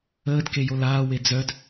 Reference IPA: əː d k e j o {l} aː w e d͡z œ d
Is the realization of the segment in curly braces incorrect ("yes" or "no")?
no